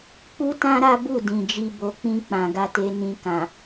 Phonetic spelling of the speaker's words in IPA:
k͡p u˦ t ã˦ ɾ a˦ b u˦˨ d ĩ˨ d͡ʒ i˧ b o˨ k͡p ĩ˧ k͡p ã˨ ɡ a˧ t e˧ n ĩ˧ k ã˨

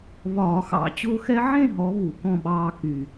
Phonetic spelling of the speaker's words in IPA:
β ɒː˧˩˧ x ɑ̰˧˩˧ t͡ɕ ʊː˦ x ɛ˦ ʕ ẽ˥˨ ɦ ɔ˨˦ β u˧˩˧ k ɔ̃˥˨ ɓ ɑː˦ k y˨˩

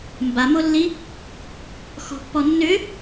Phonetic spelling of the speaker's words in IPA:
m b a m o lː i | x ɔ̤ pː ɔ nː ʏ

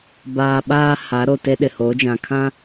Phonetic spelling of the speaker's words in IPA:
b aː˨ ɓ aː˦ h a˨˦ ɾ o˨ t e˦ ɗ ɪ˨ h o˨˦ d͡ʒ ã˨ kʰ ã˦

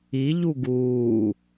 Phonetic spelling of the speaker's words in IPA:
i ʎ u ɡ uː

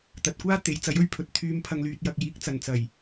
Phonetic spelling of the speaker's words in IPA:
t̪ ɐ˨ t̚ kʷ aː˥ t̪ e˨˥ j t͡s ɐ˨˥ j ɵ˥ ɥ pʰ ɵ˨ t̚ t̪ʰ yː˧ m pʰ ɐ˨ ŋ l yː˨ t̚ j ɐ˨ k̚ j iː˨˥ k̚ t͡s ɐ˨˩ n t͡s ɐ˨˩ j

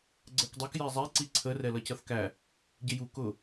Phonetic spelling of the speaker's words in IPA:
ɡ͡ǀ ɜ k dˤ u k j ɛ zˤ ɛ ǀ i ǀʰ ə r ɛ l ʌ c ʌ θ k æ | ɟ ɪ j u k ʊ

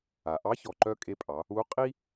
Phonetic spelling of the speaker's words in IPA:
a˩ ʔ ɑ˧˥ ç ɔ˩ ǃ œ˧ kʼ e˧ pʼ ɑ˩˧ | u˧˥ qʼ i˥

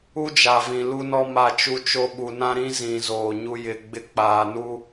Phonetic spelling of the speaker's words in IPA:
u˦ d͡ʒ a˨ v ĩ˨ l u˦ n ɔ˦ m a˦˨ t͡ʃ u˦ t͡ʃ o˦ ɓ u˨ n ã˦ ɾ ĩ˦ z ĩ˨ z oː˨ ɲ u˦ j ɪ˨˦ ɡ͡b ɪ˦ k͡p aː˨ n u˦

